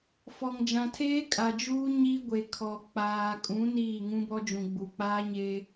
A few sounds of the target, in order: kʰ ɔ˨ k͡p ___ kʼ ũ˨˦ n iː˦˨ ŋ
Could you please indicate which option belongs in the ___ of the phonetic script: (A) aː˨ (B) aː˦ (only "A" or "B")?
A